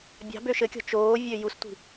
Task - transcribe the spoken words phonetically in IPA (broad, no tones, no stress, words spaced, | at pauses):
bʲɑ̤bø ʃɘkʲɔ̤ t͡ʃoː vʲøjustʷi̤